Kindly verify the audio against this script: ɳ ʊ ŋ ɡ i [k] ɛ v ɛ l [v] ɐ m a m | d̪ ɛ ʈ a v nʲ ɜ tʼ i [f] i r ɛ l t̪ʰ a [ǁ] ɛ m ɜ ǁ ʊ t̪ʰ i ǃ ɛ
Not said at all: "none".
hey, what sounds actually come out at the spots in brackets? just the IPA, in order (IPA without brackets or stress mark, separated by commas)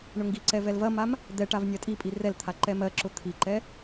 ǀ, v, pʼ, ǃ